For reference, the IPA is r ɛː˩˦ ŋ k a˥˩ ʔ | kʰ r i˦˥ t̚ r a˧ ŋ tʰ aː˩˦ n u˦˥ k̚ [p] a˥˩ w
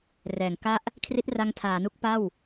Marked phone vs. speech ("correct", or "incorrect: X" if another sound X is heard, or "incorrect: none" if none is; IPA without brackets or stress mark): correct